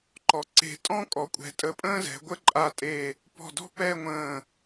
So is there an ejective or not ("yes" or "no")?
yes